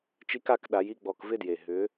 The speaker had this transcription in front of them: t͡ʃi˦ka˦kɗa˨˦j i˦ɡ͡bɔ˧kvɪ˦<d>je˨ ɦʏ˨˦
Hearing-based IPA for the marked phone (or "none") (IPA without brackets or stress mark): d